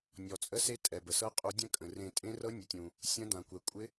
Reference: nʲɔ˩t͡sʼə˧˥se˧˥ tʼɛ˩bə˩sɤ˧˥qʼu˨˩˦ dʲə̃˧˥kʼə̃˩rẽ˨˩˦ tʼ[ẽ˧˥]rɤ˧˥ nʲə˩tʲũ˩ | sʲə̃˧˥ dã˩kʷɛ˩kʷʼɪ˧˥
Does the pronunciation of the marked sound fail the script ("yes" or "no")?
no